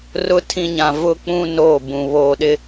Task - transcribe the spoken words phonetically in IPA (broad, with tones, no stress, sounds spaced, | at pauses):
r ʊ˨ tʰ ĩ˨ ɲ ã˨ v ʊ˨ k͡p ũ˨ n oː˦˨ b ũ˨ β oː˨ ɗ ɪ˦